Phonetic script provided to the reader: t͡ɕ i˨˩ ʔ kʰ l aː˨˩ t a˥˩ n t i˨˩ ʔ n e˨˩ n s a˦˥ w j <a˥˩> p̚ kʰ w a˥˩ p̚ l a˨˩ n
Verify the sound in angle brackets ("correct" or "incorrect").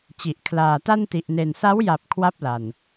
incorrect